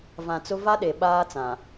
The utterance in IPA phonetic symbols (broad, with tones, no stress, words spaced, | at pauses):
vã˨ t͡sʊ˦ va˦ɗe˨ ɓaː˦t͡sã˨